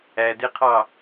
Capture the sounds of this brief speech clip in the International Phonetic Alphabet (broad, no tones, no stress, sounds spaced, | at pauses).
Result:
æ d e qʰ ɑ